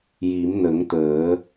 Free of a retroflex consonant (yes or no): yes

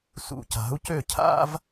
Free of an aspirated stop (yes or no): no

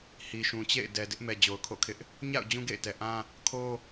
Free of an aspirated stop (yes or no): no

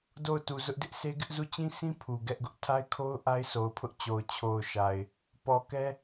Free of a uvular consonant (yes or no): yes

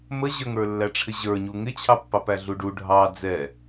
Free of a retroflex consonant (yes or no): no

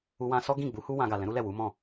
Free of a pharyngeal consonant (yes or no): yes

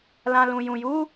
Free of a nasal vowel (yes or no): no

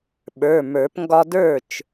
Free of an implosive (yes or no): no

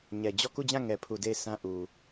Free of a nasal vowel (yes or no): no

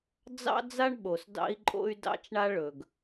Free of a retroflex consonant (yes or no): no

